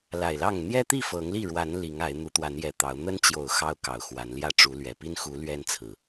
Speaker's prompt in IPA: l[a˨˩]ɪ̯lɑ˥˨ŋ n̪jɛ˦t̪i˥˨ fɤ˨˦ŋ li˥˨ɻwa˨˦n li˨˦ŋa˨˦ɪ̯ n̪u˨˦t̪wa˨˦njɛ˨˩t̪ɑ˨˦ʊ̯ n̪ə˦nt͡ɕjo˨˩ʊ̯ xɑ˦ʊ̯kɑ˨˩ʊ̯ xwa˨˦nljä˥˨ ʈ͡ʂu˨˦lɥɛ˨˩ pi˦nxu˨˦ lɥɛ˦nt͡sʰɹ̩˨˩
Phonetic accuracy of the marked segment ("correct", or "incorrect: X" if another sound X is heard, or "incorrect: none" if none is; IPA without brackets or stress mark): correct